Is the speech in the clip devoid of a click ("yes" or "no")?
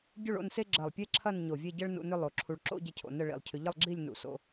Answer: no